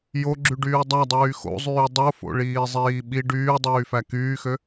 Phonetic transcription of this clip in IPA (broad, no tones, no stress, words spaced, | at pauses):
joɡ͡ǁyɖyː dˤædˤyː xo̰zˤyː dˤofo̰ɭiːzˤiː ɓi ɖyːdˤyːfæ kyːxø